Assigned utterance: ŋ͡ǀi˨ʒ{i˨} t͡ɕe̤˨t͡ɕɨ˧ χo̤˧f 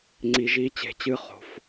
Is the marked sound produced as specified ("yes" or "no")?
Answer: no